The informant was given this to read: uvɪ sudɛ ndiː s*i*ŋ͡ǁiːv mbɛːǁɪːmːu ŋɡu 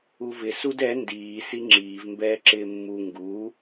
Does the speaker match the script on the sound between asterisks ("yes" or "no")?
yes